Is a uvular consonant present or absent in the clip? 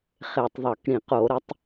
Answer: present